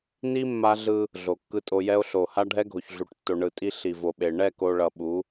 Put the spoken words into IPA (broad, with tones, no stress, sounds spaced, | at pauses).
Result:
n i˦ mː a˦ ɮ ɯ˦ | ɮ o˨ kː ɯ˦ tʼ o˦ j ɛ˦ o̯ ɬ o˨ h a˦ ɖʱ ɛ˦ ɡʱ o˨ ç ɮ u˨ ʈ tː o˨ ɳ ɯ˨ tʼ i˦ ɬ i˨ v o˨ ɓ e˨ ɳ ɛ˦˨ k o˨ ɭ ʌ˨ ɓ u˨˦